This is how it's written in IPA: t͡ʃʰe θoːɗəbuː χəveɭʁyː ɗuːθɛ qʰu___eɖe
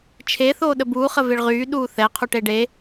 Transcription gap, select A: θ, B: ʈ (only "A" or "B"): B